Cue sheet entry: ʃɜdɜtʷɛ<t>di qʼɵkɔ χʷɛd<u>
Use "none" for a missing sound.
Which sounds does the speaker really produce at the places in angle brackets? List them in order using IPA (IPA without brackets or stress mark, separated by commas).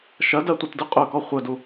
t, u